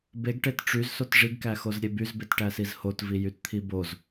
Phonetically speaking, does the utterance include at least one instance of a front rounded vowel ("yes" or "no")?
yes